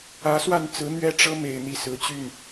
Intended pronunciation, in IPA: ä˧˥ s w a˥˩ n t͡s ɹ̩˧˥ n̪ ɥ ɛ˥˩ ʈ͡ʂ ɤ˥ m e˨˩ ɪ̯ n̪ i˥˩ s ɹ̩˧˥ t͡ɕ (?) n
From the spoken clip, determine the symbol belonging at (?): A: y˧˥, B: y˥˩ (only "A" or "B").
B